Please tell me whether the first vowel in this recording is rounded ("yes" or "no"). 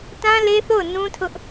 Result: no